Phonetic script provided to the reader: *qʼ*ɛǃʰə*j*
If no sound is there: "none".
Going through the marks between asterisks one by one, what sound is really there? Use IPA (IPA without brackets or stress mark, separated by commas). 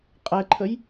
qʼ, j